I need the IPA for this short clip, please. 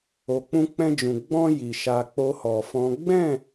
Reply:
o˨ k͡p ũ˧ k͡p ɛ̃˧ d͡ʒ ũ˨ ɡ͡b ɔ̃˧ j i˨ ʃ a˧ k͡p o˦ h ɔ˧ f ɔ̃˦ ɡ͡b ɛ̃˦˨

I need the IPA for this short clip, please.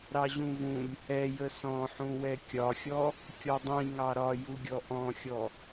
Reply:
ɾ ɑ ʑ ũ v ũ lʲ | ɛ j ə s ɔ̃ ħ ũ w ɛ kʲ ɒ xʲ ɔ | kʲ ɔ dˤ ĩ ŋ ɑ ɾ ɒ j u ɡʲ ɔ ʔ ɔ̃ xʲ ɔ

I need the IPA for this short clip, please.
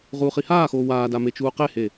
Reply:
ʁ uː χ i h aː x oː w aː d a m e t͡ʃ uː q e h e

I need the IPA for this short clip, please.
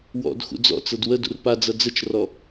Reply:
w ɔ̰ d x ṵ d͡z ɔ̰ t͡s ɤ d w ə d ṵ r p a d͡z ɐ d͡z ə t͡ʃ r ɔ

